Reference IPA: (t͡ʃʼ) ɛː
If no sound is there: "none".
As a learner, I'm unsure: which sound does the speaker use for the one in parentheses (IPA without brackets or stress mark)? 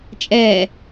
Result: t͡ʃʼ